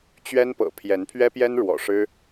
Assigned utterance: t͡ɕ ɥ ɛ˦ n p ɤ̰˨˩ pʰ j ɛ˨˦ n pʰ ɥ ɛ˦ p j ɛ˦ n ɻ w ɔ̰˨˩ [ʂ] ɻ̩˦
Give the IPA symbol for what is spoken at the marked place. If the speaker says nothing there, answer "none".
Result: ʂ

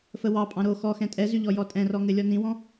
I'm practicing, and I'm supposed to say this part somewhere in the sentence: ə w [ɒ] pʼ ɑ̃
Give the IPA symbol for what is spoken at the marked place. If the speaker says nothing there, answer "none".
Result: ɑ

